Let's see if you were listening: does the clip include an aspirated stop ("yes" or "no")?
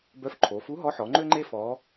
yes